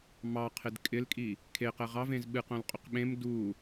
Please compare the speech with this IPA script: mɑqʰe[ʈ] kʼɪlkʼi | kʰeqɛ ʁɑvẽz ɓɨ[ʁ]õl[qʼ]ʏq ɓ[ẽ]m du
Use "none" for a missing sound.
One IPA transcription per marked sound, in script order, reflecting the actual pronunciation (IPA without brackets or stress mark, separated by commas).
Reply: d, q, qʼ, ẽ